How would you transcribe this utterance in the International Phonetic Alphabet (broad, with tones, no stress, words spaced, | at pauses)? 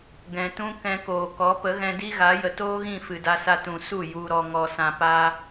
ɡɛ̃˨ tũ˦ kɛ̃˧koː˨kɔ˨˦ pə˨˦ɣɛ̃˧di˦ɣa˨˦ jə˨toː˦ɣĩ˦˨ fɨ˨da˧sa˧ tũ˨su˦˨ ju˧ɾɔ˧ ŋɔ˨sã˨pa˧